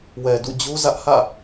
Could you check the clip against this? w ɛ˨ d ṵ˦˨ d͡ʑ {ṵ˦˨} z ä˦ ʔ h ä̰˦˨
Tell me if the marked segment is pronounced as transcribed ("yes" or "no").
no